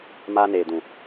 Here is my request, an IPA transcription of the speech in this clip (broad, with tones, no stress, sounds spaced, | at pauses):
m aː˦ n eː˨ d ũ˨